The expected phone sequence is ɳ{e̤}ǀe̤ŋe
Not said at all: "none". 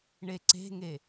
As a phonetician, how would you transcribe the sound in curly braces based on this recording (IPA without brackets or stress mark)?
e